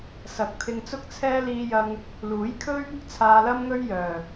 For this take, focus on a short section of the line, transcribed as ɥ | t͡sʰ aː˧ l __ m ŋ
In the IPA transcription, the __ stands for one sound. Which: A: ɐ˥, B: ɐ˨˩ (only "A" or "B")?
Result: A